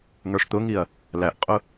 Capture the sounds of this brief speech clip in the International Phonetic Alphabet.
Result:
ŋ ə˞ ʂ t̪ ʊ ŋ i ɐ̯ | l æ ʔ qʼ ʊ

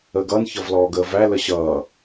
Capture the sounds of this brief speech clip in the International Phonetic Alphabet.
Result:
əː ɡ ʌː n ç ʌ v l ɔː ɡ əː v æ l ə ɕ ʌː

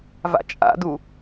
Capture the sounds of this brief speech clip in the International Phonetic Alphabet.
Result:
v a̰ t͡ʃʼ a̰ d u

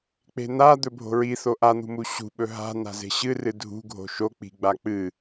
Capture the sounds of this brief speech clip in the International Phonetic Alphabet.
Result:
k͡p e̤ n̪ a d̪ ɵ bʱ o̤ ɹ i θ o ʔ a n̪ ṳ m u ɕ ṳ ɓ ɵ ɦ a̤ n̪ a̤ z e̤ ɕ ɨ r ɨ dʱ ṳ ɡʱ o̤ ʃ o k͡p i̤ ɡ͡b a k͡p ɨ

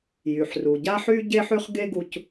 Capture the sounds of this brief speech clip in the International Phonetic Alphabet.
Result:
j y˨ ħ r u˨ ɟ a˥ ħ y˥ ɟ e˥ ħ y˥ χ ɡ e˥ ɡ u˦ c

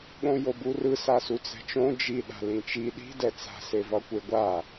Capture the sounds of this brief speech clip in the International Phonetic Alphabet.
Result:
ɠ õ j o b u r ɯ s a s u t͡s ɛ̤ t͡ʃ õ d͡ʒ i ɗ a̤ l ĩ t͡ʃ i ɗ i̤ d ɛ t͡s a̤ s e v ʌ kʷ e ɡʷ a

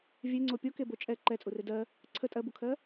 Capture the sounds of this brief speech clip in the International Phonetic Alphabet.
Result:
vʲ e ŋ͡ǀ o pʲ o k e b o t͡ʃʼ ɛ ǃ ɛ t͡sʼ u r e d ɜ | ǀʰ ə tʼ ɜ b u kʰ ɜ

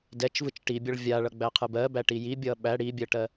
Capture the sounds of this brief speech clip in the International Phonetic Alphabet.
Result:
d ɛ t͡ʃ v ɯ t͡ʃ ʈ i bʲ ʌ ɭ vʲ a ɭ ʌ ɡ͡b æ qʰ ɯ b ɜ b æ ʈ i j i bʲ ʌ ɓ æ ɽ i bʲ ɜ ʈ ɜ

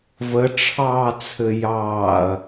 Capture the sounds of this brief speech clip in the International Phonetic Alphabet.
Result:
v ə ʈ͡ʂʰ ɑː t͡sʰ ɘ j ɑː ɐ̯

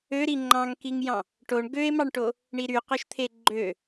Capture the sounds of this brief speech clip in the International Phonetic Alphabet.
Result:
ø ɾ i ŋ͡ǃ ɑ̃ ŋ k i ŋ j ɑ̃ | ʈ o ɳ ɡ ø e̯ m ɑ ɳ ʈ o | ɳ i ɾ y q o ʃ t̪ʰ e ɡ͡ǃ ø

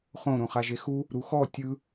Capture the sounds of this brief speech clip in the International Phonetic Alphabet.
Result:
χ õ ɾ õ χ a ʒ e x u | ɾ u x ɔ tʲ ɯ

